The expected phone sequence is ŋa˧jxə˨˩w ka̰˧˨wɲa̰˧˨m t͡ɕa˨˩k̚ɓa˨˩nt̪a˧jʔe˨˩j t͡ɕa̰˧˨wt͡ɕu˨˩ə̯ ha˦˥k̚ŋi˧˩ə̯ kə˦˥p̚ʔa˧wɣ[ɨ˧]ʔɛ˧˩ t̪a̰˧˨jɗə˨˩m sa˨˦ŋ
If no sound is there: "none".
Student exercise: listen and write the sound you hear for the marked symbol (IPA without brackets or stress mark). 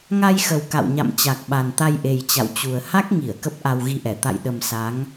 i˧